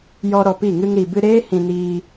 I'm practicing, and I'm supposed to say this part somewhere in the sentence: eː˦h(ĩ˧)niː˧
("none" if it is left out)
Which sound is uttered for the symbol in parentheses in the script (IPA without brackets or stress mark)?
ĩ˧